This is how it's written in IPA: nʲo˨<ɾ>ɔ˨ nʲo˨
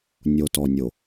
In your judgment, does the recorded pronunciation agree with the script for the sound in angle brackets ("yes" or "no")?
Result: no